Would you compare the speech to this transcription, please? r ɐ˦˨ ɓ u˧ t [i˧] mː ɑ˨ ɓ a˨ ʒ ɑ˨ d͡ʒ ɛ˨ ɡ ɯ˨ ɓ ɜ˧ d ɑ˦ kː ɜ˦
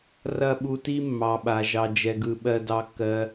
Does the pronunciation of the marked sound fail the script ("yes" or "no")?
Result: yes